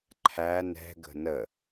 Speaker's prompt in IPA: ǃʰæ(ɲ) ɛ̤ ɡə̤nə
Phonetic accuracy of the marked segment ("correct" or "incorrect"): incorrect